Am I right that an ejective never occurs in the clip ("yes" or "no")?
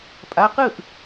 no